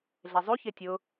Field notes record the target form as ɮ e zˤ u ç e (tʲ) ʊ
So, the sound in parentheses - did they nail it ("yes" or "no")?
yes